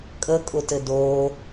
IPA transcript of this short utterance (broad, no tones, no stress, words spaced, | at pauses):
kʼəkʼʊtɘ doː